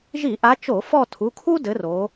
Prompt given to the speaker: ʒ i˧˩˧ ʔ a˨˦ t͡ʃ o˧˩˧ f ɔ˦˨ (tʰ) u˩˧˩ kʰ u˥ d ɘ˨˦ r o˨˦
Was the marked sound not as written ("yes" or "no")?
no